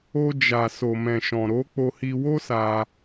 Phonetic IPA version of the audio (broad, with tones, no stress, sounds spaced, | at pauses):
o˧ d͡ʒ a˨ s o˨ m ɛ̃˨ ʃ ɔ̃˨ ɾ o˨˦ k͡p o˧ h i˧ w o˦ s a˧